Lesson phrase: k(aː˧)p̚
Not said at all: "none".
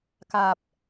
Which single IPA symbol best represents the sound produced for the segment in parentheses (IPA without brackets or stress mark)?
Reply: aː˧